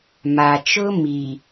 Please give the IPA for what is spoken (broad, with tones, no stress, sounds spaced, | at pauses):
m a˨ t͡ʃ ʊ˦ m i˨